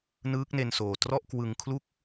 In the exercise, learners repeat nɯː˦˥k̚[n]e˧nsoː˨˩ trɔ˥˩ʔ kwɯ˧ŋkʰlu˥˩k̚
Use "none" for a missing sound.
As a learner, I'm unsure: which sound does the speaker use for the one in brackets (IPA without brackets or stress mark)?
n